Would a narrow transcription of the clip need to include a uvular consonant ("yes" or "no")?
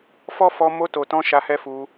no